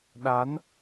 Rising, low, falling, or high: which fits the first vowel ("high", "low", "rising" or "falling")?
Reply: rising